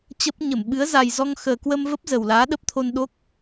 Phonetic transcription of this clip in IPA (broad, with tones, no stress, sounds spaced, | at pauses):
t͡ɕ ə˦˥ p̚ ɲ ə˧˩ m ɓ ɨ˨˦ ə̯ z a˨˩ j z ɔ˧ ŋ x əː˨˩ k w ə˧ m v ə˦˥ p̚ z ə˨˩ w l aː˨˦ ɗ ə˦˥ p̚ t̪ʰ o˧ n ɗ o˦˥ k̚